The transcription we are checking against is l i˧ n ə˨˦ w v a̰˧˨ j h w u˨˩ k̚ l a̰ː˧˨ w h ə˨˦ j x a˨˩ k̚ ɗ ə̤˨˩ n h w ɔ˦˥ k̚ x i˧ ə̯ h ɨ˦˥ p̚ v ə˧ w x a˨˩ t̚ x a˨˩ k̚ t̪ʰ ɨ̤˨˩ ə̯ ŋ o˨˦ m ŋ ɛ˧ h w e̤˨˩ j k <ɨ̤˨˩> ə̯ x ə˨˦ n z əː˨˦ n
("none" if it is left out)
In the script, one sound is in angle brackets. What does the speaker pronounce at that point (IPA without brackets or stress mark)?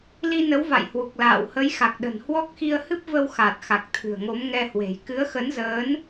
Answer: ɨ˨˦